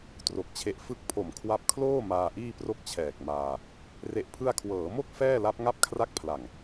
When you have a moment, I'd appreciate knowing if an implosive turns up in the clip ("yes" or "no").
no